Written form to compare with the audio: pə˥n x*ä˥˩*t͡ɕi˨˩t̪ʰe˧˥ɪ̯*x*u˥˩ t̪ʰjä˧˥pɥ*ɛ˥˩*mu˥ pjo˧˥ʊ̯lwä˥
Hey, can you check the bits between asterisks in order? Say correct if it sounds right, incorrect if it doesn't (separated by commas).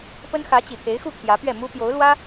incorrect, correct, correct